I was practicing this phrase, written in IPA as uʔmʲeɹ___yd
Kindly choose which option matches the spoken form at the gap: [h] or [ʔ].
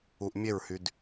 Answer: h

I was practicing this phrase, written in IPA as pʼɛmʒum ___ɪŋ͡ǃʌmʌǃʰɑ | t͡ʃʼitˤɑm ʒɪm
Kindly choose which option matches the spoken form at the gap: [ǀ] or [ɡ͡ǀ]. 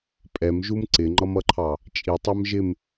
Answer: ǀ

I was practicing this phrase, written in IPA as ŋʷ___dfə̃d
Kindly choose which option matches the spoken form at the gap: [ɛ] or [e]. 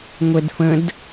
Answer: ɛ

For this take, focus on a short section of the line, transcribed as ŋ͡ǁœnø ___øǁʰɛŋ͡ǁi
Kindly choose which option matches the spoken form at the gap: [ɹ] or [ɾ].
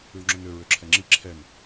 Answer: ɹ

